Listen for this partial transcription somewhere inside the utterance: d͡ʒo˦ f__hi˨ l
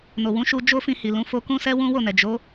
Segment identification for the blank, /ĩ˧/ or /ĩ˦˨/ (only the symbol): ĩ˧